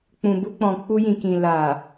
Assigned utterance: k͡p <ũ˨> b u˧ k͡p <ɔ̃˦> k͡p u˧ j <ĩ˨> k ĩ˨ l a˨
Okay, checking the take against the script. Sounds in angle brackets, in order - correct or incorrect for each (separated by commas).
correct, incorrect, correct